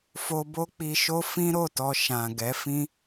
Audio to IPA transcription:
f o˧ b o˦ k͡p i˧ ʃ o˦ f ĩ˦ ɾ o˦˨ t ɔ˧ ʃ ã˨ ɡ ɛ˨˦ f ĩ˦

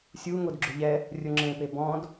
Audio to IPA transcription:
sʲ u ŋ o d ɡ͡ǁ ʊ ʎ ɛ | rʲ ʊ ŋ͡ǁ ẽ p e b ɔ̃ d

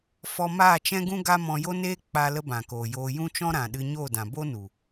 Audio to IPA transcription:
f ɔ˧ m aː˦˨ t͡ʃ ɛ̃˦ ɡ ũ˦ ɡ a˦ m ɔ̃˧ j o˦ n eː˦ k͡p a˧ l ə˦ b ã˨ k oː˨ j oː˧ j ũ˦ t͡ʃ ɔ̃˦ ɾ ã˨ ɗ ɨ˧ ɲ oː˦˨ d ã˨ b o˦ n u˨

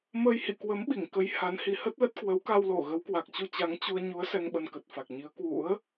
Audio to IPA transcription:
m əː˧ j h ḭ˧˨ k w ə˨˦ m ɓ i˧˩ ŋ k ə˨˦ j h a˨˦ n h i˨˦ h ə˦˥ t̚ l ə˦˥ t̚ k w ə˨˦ w k a˧ w l o˧˩ ɣ ə˨˦ w k w a˨˩ k̚ t͡ɕ u˧ t͡ɕ a˨˦ ŋ t͡ɕ u˧ ə̯ ɲ u˨˦ ə̯ s ɛ˧ ŋ ɓ ə˧ n k ə˨˩ t̚ f a˨˩ k̚ ɲ i˨˦ ə̯ k w ṵ˧˥ ə̯

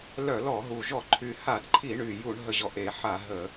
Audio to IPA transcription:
l œ˧˩˧ l ɔ˧˩˧ ɦ u˨˩ ʒ ɔ˧˩˧ ǃʰ y˨˩ h a˧˩˧ d ǃʰ i˧˩˧ ɳ y˨˩ j u˧˩˧ ɳ ɦ ə˨˩ ʑ ɔ˨˩ ʔ e˧˩˧ ħ a˧˩˧ ɦ ə˧˩˧

